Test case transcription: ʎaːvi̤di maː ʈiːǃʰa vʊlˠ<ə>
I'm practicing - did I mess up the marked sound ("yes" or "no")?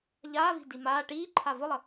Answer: no